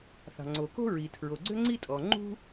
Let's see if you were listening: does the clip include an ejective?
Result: yes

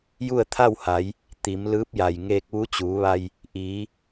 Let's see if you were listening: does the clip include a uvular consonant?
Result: no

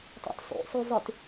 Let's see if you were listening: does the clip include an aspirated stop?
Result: no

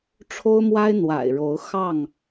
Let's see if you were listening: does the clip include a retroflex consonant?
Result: yes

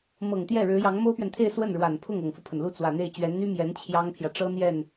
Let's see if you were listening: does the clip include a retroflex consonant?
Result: yes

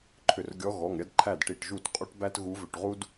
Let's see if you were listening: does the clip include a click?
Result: yes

